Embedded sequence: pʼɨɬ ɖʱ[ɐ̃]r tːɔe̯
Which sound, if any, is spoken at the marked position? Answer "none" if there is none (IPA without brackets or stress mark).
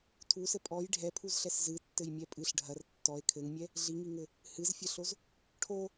ɐ